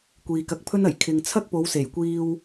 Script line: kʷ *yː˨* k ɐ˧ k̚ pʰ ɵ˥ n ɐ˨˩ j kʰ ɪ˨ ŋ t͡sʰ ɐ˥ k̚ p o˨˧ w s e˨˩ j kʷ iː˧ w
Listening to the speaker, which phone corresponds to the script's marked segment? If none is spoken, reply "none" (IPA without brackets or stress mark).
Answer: iː˨